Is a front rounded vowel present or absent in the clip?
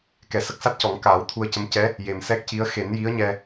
absent